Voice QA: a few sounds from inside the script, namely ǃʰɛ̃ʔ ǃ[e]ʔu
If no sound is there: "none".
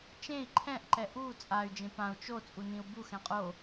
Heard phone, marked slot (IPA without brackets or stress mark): ɛ